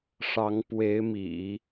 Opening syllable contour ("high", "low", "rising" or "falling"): rising